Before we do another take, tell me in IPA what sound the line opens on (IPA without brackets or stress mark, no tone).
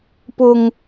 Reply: p